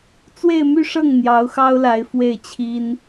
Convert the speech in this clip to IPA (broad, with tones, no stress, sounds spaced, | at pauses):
t͡s w e˥˧ ɪ̯ m y˥˧ ʂ ɤ˥˩ ŋ n̪ j ɑ˧˥ ʊ̯ x ɑ˥ ʊ̯ l a˧˥ ɪ̯ f w e˥˩ ɪ̯ t͡ɕʰ i˥ n